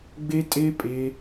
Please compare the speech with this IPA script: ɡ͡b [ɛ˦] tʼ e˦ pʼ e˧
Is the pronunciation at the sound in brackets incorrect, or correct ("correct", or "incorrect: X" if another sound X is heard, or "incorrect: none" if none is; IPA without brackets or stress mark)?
incorrect: e˦